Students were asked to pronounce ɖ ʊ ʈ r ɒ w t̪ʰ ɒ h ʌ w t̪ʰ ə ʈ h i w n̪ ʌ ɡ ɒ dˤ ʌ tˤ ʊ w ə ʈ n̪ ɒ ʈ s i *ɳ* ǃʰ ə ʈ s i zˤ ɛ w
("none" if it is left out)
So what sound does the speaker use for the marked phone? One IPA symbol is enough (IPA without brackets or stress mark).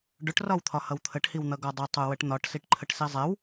ʈ